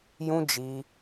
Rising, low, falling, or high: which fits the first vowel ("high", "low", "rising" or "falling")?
high